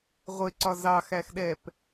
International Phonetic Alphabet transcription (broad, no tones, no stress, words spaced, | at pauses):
ʁʷɪǀɒ zɑxæxɗɛp